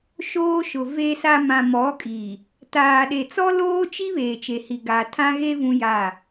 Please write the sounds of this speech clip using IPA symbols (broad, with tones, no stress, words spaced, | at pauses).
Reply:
ʃoː˦ʃʊ˨ ve˨sa˨ mã˨mɔ˨˦kʼi˨ | taː˨ɗe˨ t͡sɔ˦loː˦t͡ʃi˦ βeː˨t͡ʃe˨hi˨ɡaː˨ tʰã˦ɣe˦ vũ˦ja˦˨